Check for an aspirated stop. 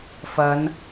absent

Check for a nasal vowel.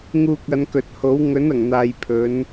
absent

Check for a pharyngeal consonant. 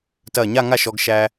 absent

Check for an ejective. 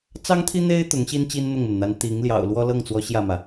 absent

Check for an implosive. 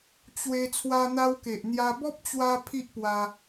absent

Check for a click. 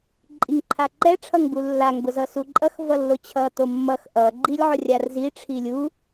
present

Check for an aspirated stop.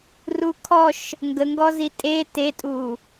present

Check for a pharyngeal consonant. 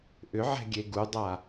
present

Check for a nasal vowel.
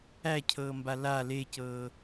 absent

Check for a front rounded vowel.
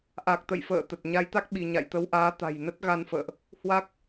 absent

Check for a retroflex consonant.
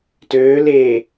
absent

